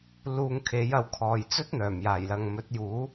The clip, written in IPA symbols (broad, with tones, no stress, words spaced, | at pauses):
luː˧ŋkʰe˨˥jɐ˨˥wkʰɔː˨j t͡sɵ˥t̚n̪œː˨˩mjaː˨˩jlɐ˨ŋ mɵ˨˥t̚juː˨˥